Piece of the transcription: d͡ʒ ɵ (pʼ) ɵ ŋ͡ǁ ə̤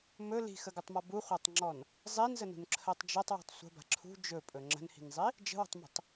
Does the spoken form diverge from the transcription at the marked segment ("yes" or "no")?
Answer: no